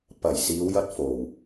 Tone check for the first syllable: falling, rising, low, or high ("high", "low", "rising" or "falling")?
low